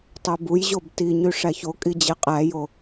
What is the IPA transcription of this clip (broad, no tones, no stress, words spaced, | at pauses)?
tˤøbujʑob tiɲy ʂæçokʼi d͡ʑeqʼæjo